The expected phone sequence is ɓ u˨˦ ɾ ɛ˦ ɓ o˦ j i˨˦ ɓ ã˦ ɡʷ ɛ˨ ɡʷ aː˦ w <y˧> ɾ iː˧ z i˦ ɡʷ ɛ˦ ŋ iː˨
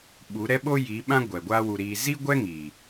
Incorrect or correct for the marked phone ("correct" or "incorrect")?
incorrect